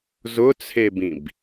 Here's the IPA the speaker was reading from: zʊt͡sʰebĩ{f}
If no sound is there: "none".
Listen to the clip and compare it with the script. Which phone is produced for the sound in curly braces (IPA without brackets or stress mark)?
b